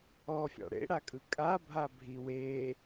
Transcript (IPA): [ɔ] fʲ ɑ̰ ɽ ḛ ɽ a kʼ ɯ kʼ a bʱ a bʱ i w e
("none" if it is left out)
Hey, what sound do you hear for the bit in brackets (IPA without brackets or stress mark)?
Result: ɔ